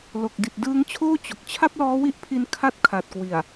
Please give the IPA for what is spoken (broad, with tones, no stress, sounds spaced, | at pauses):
l o˨˩ k̚ d i˨˩ t̚ d ɯː˦˥ ŋ t͡ɕʰ oː˥˩ t͡ɕ o˨˩ k̚ t͡ɕʰ a˥˩ p̚ l ɔː˦˥ w i˦˥ ʔ pʰ i˧ n kʰ a˥˩ t̚ kʰ a˨˩ t̚ k w i˨˩ a̯